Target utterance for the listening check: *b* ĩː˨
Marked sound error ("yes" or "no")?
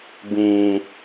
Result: no